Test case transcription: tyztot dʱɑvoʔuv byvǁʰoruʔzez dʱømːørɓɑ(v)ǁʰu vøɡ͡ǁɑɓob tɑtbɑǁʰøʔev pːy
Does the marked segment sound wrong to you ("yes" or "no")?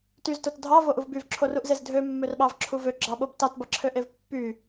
no